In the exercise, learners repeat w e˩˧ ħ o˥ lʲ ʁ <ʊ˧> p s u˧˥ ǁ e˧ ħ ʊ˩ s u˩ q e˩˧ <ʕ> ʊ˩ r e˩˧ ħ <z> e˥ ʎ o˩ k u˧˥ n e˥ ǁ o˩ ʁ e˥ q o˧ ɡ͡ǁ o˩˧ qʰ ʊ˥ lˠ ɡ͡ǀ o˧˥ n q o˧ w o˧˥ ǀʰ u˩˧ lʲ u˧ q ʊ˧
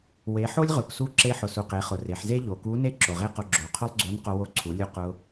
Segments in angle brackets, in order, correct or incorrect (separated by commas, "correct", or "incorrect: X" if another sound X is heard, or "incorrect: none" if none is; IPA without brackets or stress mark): incorrect: ʊ˩, incorrect: χ, correct